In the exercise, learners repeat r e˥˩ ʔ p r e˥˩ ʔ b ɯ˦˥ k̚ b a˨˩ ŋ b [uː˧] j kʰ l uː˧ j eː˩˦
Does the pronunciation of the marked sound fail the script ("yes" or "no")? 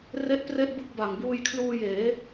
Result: no